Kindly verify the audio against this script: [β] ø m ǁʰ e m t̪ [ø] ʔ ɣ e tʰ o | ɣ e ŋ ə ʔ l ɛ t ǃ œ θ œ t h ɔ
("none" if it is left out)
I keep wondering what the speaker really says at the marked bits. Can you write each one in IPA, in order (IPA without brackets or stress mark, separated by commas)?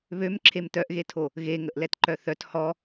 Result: β, œ